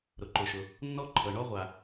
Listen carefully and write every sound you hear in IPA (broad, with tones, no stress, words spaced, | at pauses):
ɾʊ˩ǃʊ˩ʃʊ˩ | nːɔ˥ǃʰɤ˩ ɳɔ˥ʁʷa˩